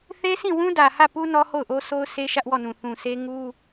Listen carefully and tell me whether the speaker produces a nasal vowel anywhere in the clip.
yes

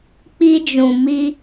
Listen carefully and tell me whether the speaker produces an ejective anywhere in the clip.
no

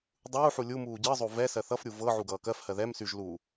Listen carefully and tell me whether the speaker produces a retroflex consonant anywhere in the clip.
no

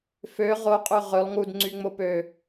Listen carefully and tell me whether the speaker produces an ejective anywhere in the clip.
yes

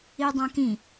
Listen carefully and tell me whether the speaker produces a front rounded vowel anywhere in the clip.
no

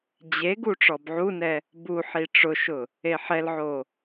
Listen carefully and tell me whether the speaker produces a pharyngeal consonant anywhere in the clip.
yes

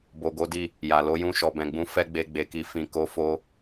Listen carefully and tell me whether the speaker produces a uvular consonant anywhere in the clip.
no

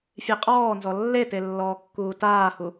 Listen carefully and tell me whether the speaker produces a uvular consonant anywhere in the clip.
yes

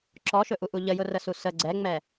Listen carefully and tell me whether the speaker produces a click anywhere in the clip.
yes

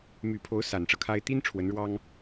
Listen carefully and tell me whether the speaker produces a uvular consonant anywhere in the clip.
no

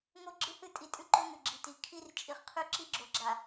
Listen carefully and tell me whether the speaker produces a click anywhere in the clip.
yes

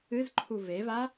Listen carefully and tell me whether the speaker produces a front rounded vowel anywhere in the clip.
no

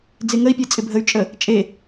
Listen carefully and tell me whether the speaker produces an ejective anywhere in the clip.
yes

